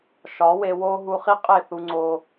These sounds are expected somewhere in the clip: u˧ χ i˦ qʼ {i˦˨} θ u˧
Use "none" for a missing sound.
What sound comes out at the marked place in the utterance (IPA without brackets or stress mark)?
e˦˨